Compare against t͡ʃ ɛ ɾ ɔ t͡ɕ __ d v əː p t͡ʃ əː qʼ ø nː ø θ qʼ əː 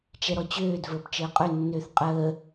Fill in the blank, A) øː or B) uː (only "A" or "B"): A